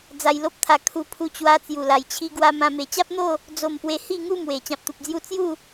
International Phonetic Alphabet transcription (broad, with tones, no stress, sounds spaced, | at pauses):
d͡z a˧ j l o˦ p̚ t̪ʰ a˧ kʰ u˧ pʰ u˧ t͡ɕ w a˧ t͡s j u˨˩ l a˨˩ j t͡ɕʰ i˧ ɡ w a˧ m ã˧ m e˨˩ t͡ɕ a˦ p̚ n̪ o˥˧ | d͡z o˥˧ m p w e˦ h i˥˧ ŋ u˥˧ m w e˨˩ t͡ɕ ã˨ p̚ t̪ u˨ p̚ d͡z j u˧ t͡s j u˥˧